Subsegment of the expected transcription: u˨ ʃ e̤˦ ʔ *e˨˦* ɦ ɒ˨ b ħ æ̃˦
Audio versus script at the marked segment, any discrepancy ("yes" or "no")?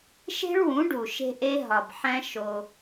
yes